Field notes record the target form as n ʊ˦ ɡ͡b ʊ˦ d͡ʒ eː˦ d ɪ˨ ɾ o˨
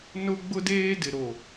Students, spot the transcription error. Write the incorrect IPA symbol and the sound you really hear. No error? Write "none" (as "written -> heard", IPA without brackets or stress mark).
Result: d͡ʒ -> d